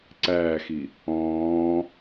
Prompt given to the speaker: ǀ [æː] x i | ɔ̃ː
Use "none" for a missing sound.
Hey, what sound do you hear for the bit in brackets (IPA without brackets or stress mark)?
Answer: æː